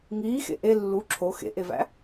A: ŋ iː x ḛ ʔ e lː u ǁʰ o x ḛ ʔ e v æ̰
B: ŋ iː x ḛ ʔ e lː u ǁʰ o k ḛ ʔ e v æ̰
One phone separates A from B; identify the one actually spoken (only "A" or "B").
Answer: A